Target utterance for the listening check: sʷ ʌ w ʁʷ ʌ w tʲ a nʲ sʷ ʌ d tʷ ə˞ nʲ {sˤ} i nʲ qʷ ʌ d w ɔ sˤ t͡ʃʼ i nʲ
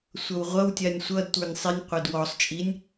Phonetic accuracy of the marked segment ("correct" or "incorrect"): correct